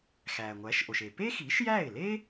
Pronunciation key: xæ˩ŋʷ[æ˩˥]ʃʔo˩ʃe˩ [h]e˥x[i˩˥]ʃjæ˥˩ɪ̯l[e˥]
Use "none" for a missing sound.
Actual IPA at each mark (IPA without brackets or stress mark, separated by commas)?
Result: æ˩˥, p, i˩˥, e˥